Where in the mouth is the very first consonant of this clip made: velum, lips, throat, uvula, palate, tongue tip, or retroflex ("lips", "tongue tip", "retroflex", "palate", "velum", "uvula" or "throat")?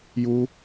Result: palate